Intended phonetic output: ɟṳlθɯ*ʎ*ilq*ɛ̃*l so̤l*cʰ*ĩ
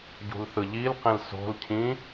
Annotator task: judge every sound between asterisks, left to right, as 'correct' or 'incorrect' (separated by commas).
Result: correct, correct, correct